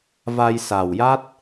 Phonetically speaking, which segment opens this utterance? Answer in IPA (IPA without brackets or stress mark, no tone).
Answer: v